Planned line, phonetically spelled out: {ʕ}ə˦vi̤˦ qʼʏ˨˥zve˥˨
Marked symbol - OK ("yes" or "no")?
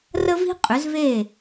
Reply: no